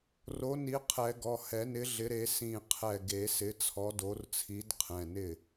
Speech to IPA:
ro˨˥ ni˨˥qʰɛ˨˩˦ɡɔ˩˧˩ hɛ˨˩˦nɪ˨˥ ɮɪ˨˥ɾe˨˥ sĩ˧˩ qʰɛ˧˩ɡe˨˩˦ sɪ˨˥t͡sʰɔ˨˥do˨˥rt͡sʰi˨˥d qʰɛ̃˩˧˩nɪ˥˩

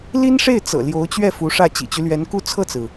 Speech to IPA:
li˥nʂe˥˩ɪ̯ t͡sɤ̰˨˩ ljo˧˥ʊ̯t͡ɕɥɛ˥˩ fu˧˥ʂä˥˩ t͡ɕḭ˨˩t͡ɕy˦lɥɛ˧˥nku˥˧ t͡sʰɤ˥˩t͡sɹ̩˩

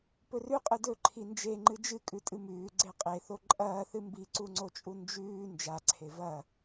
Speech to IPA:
pɵrʉ qʼɨdɵǃʰi nd͡ʒeŋ͡ǃɨ d͡ʒɨkʼʉ tʼɨmʉː ɡ͡ǀeqʼeθo ǃʼɐːθɨ mbiǀuŋ͡ǀot͡ʃʼu nd͡ʒʉː nd͡ʒaǀʰe vɐ

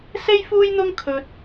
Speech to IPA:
se˥jfuː˥jn̪ʊ˥ŋ kʰɵ˧t̚

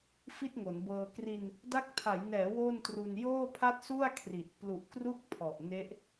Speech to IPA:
fi˥˩t̚ŋo˩˦nbɤː˧ kri˧n | da˦˥k̚tʰa˩˦j nɛː˩˦ wo˥˩ntru˧n joː˥˩pʰa˥˩t̚su˥˩a̯kʰri˨˩t̚ plu˨˩ʔkru˦˥k̚ pʰɔ˨˩ʔne˦˥ʔ

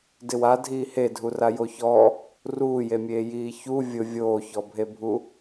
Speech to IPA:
dɪwa dʱiːhedʱu rajoçɔ | ruːjemʲeː jiːçu vʲʊ vʲoːçɔbʱebʱu

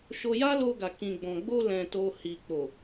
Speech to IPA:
ʃo˧ja˦lo˧ɡa˨ kĩ˨ɡ͡bɔ̃˨ɡ͡bo˧ lɛ̃˨to˨ hi˨k͡po˨

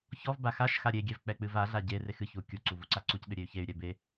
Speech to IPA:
çɔvba xaʃxa ɾʲeɡʲɛv k͡pɛk͡pɨvaɮa ɟerex ɨçu kʲuǀu vuǀaǀucɗɨ ɾʲey̯çey̯ɾʲɛ be

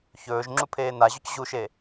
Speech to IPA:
çɵːʒ ŋ͡ǁupʰeːnaʑɵc ʑuʃe

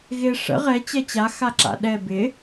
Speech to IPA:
ɣɪ ʂə̰ ʁɛ t͡ɕɛt͡ɕa xaǁa̰ɗɛ bɪ

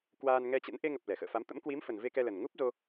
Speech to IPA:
kwaː˧nŋɛ˧t͡ɕə̰˧˥n ʔe˧ŋə˨˩p̚ lɛ˧˩xə̰ː˧˨fa˨˦m t̪ə̰˧˥mkwi˨˦mfə˨˩n ve˧kɛ˧lə˨˩n ŋu˦˥p̚zo˧

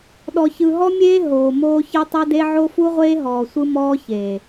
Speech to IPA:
ɗɔ˨çɯ˨ɦɔ˦mʲeː˦ ɦoː˨moː˦ çɤ˦tˤɤ˦de˦ ʕo˦fu˦ʁʷeː˦ ɦɔː˨sʷɯ˦ mɔː˦çeː˨

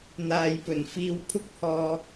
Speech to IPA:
n̪aː˨jpɵ˨˩nfiː˧w pʰʊ˥k̚hɔː˧

